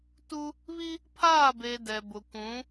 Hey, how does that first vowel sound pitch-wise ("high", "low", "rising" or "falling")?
high